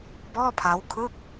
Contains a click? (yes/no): no